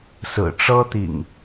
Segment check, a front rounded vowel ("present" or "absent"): absent